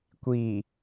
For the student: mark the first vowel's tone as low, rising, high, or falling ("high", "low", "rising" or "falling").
low